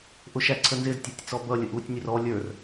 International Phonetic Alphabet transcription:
ʔʊʃæǀʰənzɪz tʲə˞tʲt͡sɔbʌ lʲəʔutʲ nʲʊrɔ lʲə˞r

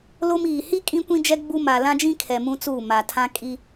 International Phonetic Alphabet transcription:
lo˦miː˨ hi˦ kʼĩ˦kʷĩ˦d͡ʒɛ˦ ɡ͡bu˦ ma˨lã˦d͡ʒĩ˦kʰɛ˨ mũ˦t͡suː˦˨ ma˨tʰã˦ kʼi˦

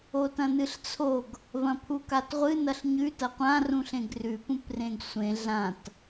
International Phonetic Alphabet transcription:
otɐ̃nɨɬt͡sʰoɡ | vɐ̃pʰukatʁʷɨ nɐɬɲʉ tɐqʷã rũɬẽɡrʉ pũprẽɡsʷẽ ɮãt

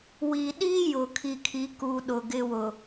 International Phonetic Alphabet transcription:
wi˨ɗi˦jʊ˨ kʰi˨kʰi˨ku˨ ɗʊ˨ɡɪ˦wʊ˨

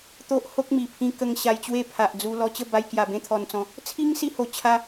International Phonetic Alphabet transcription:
t̪o˦ʔ ho˦k̚mi˨˩pʰĩ˧kə˧ŋ ɕa˧jt͡ɕwe˥˧pʰa˨ʔd͡zu˧ lɔ˧t͡ɕə˥˧ba˧j kja˨˩bẽ˧t̪ʰɔ˨˩nt͡sɔ̃˨˦ | t͡sʰi˦ŋsi˧ho˨˩t͡ɕʰa˧

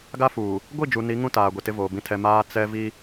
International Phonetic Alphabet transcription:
ɡa˦fuː˨ | ɡʷi˦˨d͡ʒu˨ni˨˦ ŋũ˦taː˨ ɡʷi˨tɪ˦ voː˨bĩ˦tʰɛ˦ maː˦ t͡sɛ˦vi˦

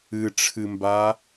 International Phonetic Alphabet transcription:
ɨʈ͡ʂʰɨmba

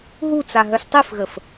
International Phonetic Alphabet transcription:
ɦut͡sa ɦœstˤifɣəf

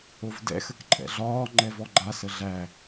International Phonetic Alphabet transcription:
ovdɛ̰ xəkǃʼɛ̰ɮɒː ŋ͡ǃɛvɔɡ͡ǃa səɮæ

